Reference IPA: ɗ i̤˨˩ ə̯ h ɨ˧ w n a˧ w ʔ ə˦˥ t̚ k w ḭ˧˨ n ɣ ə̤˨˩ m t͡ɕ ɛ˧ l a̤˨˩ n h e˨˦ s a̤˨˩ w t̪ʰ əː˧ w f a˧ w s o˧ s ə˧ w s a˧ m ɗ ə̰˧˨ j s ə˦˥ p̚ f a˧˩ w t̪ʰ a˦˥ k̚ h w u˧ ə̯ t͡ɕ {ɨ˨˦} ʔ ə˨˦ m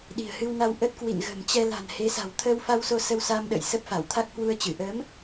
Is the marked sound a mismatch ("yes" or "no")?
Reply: yes